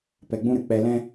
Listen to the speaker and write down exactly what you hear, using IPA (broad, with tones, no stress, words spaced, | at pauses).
pɛ˧ɡ͡bũ˦ɾɨ˨ k͡pɛ˧lɛ̃˦